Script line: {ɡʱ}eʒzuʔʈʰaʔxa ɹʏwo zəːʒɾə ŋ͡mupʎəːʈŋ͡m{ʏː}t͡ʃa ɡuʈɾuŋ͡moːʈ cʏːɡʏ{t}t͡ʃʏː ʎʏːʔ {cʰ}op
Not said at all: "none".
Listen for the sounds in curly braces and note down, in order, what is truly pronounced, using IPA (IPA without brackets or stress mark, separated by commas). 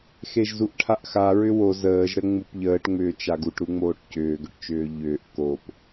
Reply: x, ʏː, ʈ, k